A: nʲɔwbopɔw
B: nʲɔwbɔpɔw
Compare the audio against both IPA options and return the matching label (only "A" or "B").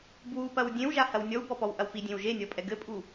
B